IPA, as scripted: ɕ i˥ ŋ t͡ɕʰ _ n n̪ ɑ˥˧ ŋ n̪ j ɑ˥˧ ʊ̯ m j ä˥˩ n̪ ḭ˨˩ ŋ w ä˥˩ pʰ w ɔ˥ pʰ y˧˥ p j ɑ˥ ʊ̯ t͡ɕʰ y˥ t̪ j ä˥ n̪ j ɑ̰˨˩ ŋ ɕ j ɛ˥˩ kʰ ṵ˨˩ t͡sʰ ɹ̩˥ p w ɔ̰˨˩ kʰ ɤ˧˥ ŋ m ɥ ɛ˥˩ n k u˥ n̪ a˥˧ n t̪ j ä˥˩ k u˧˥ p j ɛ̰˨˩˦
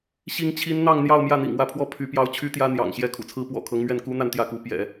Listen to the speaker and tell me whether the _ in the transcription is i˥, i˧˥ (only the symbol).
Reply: i˥